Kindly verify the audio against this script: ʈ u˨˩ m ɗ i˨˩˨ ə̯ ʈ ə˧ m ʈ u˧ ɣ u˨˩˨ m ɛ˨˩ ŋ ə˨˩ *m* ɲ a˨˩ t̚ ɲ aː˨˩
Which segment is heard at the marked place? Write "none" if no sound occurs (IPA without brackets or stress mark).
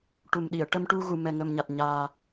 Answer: m